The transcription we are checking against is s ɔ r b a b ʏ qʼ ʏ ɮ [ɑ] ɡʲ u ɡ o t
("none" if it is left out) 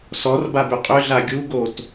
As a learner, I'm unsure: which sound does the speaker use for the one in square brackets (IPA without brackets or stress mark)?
a